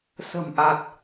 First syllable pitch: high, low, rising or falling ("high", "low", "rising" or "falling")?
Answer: low